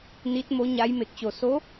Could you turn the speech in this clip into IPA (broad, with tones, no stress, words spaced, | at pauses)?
ni˧˥t̚mo˧˥ɲa˧˥j me˧˩k̚t͡ɕo˧˩ so˧˥